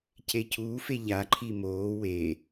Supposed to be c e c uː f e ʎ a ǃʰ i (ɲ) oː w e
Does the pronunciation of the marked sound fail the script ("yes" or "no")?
yes